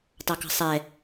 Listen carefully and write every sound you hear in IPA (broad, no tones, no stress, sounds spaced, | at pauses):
t ɑ k ɑ̤ sˤ ɛ